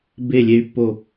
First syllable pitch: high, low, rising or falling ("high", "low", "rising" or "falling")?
falling